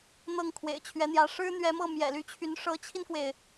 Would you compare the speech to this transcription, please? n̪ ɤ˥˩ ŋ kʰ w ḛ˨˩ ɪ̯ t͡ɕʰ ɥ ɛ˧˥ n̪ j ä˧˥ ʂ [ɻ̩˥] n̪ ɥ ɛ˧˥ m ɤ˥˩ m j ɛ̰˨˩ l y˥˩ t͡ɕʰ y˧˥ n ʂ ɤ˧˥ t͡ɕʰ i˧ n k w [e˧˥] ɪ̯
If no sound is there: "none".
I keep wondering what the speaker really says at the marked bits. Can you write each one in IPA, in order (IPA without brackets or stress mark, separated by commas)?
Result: ɻ̩˥, e˩